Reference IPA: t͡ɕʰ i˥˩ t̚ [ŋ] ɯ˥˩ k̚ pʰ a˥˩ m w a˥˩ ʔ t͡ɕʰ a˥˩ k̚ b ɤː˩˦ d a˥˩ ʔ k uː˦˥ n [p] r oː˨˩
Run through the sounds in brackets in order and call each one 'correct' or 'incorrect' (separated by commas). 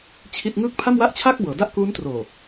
correct, incorrect